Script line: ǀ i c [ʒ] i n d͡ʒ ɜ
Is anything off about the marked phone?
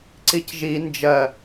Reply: no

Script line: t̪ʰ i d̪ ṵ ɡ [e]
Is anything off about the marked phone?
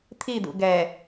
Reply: yes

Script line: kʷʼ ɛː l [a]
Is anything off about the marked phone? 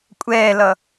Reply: yes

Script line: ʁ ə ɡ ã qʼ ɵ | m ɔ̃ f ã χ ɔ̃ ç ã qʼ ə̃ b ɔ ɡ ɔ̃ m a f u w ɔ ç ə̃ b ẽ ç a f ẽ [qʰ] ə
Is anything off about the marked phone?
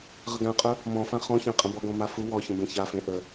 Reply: yes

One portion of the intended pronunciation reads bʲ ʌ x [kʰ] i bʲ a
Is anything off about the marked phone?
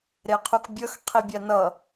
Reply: yes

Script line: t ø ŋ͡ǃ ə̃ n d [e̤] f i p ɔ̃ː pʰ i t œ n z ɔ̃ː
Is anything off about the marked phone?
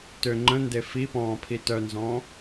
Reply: yes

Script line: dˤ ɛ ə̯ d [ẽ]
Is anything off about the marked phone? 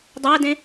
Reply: no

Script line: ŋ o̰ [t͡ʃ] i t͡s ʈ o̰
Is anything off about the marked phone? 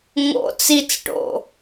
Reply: yes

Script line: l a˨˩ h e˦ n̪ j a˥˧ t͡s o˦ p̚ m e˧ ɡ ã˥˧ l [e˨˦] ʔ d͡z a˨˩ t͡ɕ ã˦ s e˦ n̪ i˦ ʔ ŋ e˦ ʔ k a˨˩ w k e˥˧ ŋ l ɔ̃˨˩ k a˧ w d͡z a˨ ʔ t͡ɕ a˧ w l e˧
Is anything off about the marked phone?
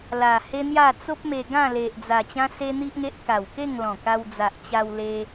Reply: yes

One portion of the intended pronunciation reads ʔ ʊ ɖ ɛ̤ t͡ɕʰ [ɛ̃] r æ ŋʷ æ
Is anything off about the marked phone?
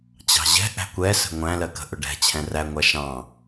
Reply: no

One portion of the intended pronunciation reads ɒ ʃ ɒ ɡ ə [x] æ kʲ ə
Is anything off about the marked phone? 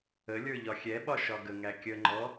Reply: yes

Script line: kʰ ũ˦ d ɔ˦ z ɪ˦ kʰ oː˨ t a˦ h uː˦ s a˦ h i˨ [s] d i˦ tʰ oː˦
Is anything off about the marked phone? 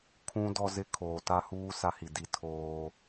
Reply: yes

